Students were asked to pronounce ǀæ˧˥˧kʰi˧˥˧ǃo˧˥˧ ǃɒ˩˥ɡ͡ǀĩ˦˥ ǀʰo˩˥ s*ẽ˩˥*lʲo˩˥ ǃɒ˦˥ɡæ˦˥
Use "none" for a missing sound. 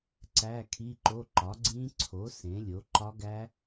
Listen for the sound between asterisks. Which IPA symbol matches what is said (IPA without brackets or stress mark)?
ẽ˩˥